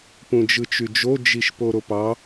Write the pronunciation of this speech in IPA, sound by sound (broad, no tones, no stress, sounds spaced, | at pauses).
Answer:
p ũ d͡ʒ ɯ t͡ʃ y d͡ʒ o d͡ʒ i ʃ p o ɾ o p ɑ